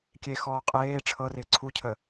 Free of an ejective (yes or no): no